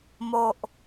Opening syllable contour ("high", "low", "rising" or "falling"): low